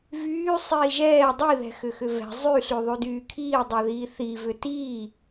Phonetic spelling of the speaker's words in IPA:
vyː sˤiːʒɛː dˤi ðɛ̤xʏxʏvɛ̤ zˤyɬy ðˤydyːkʰiː dˤeðiːθi vʏtiː

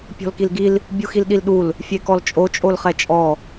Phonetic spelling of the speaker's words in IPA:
pʲɔ̤lkilɡil | bʲuxilɗilɗul | fʲekɔlt͡ʃʼo t͡ʃʼolχɛt͡ʃʼɔ

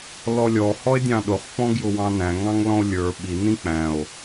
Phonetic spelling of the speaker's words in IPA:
lɔlʲɔ hɔe̯dʲɑ̃ɗʊχ pɔ̃ɡjʊwɑ̃næ̃ ŋɑ̃ŋlɔ̃o̯lʲə˞ ɓi nĩk͡pæ̃o̯

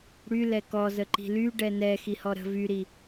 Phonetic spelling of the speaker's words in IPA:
ɽy lɛkɔ zəǃi̤ly ɖɛnɛ xihɔɾə̤ vyɾi

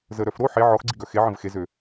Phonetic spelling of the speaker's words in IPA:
zəɾœf ɾo ħe ʕɔxɡ͡ǀiɡœ xeʕə̃v xezø

